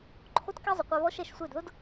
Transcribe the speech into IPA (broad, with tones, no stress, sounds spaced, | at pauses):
ǃʰ o˦ t k ɛ˦ zˤ ʊ˨ qʷ a˦ β ɔ˦ ʃ ɛ˨ ʃ sʷ e˦˨ d ð ʊ˦ d